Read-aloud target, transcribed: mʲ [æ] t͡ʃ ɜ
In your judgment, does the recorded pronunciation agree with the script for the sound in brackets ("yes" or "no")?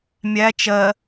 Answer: yes